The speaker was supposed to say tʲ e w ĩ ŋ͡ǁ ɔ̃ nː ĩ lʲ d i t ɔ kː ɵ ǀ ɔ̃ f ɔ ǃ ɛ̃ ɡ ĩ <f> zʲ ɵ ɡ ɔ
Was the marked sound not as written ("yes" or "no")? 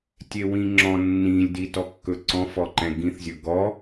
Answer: yes